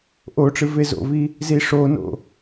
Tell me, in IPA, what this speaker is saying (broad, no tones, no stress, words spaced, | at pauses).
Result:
ʔoʈ͡ʂɨ vezo̰vi | ziʂono̰